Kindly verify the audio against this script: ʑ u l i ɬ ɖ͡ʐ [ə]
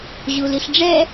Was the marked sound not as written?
yes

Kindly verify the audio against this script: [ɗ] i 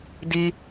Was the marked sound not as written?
yes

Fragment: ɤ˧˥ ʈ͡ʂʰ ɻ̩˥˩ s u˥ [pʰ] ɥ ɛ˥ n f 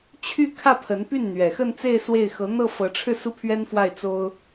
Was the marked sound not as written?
no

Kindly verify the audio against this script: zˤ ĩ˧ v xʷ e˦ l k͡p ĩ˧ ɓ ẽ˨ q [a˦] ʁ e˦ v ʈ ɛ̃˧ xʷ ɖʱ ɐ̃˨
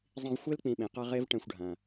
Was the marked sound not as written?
no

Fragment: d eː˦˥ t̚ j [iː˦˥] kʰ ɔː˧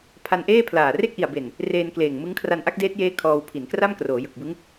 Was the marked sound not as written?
yes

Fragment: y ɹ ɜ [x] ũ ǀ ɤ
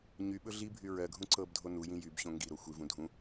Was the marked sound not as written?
yes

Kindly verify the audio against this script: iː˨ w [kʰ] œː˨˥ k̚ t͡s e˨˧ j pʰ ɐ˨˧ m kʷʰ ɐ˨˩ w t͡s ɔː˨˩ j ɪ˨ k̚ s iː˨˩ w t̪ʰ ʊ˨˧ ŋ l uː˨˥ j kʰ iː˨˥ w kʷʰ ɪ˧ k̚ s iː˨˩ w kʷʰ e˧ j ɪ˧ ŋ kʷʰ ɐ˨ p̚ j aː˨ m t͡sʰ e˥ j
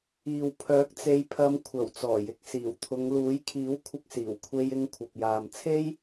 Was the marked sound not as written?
yes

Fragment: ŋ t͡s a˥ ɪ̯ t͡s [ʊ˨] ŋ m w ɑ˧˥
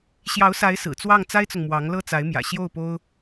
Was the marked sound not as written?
no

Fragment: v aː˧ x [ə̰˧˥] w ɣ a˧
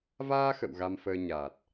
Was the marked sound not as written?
yes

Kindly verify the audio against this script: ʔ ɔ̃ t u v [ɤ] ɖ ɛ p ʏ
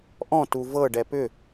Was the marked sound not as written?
no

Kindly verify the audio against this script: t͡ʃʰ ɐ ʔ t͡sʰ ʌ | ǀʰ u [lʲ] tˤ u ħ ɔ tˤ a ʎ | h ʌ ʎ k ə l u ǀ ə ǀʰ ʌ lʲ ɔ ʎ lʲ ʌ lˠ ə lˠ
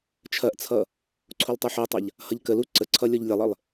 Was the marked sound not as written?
yes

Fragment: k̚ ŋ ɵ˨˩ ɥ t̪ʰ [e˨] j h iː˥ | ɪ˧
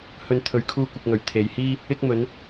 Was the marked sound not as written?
no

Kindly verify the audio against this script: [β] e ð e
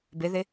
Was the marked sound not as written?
yes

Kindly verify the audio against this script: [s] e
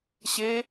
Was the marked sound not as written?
yes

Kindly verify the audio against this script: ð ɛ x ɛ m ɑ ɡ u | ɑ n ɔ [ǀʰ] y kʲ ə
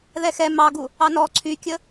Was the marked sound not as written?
no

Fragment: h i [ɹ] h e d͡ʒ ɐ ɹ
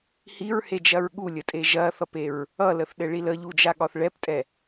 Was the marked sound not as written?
no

